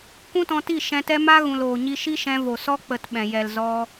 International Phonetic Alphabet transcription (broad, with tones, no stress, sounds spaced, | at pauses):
kʷ ũ˦ t ɔ̃˧ t i˦˨ ʃ ɛ̃˧ t ɛ˦ m a˦ ɣ ũ˨ l oː˨ ɲ i˧ ʃ i˦ ʃ ɛ̃˧ v o˨ s ɔ˦ k͡p ə˨ t ɓ ɛ̃˨ j ɛ˨ l z ɔ˧